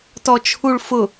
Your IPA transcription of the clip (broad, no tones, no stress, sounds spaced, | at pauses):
t ɔ t͡ʃʰ u ɭ f ʊ